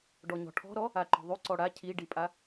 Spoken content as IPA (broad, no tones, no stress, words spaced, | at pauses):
ɖɔɲɔ̤ʈʰɔ̤ɾɔ | aǃɔ̤ðˤy ǀɔɽa cʰiɖipʼa